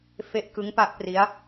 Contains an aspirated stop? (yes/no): no